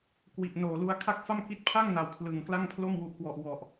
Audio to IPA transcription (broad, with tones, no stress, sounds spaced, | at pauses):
k w i˨˩ ʔ n oː˨˩ l u˧ a̯ kʰ a˥˩ k̚ f a˥˩ m k i˦˥ t̚ pʰ a˥˩ ŋ n a˨˩ w kʰ l ɯ˨˩ ŋ k l a˥˩ ŋ pʰ l o˥˩ m w u˦˥ ʔ k w ɔ˨˩ ʔ w ɔ˨˩ ʔ